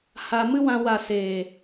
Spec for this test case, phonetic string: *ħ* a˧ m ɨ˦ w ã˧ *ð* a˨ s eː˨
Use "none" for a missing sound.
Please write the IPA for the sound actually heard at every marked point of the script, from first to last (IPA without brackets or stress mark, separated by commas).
h, w